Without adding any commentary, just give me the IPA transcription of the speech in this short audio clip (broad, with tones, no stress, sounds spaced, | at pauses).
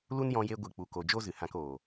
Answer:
l u˦ n j ɔ̃˧ j e˧ ɡʷ ɨ˨ k͡p u˨ k o˨ d͡ʒ o˦ z ɨ˨ h ã˧ k oː˨